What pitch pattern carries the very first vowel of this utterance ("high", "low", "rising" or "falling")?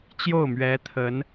falling